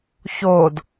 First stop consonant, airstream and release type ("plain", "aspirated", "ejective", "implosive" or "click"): plain